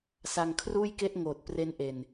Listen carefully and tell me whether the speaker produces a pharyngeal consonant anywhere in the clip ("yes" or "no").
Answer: no